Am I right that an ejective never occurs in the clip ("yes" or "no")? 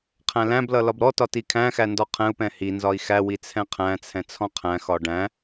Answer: yes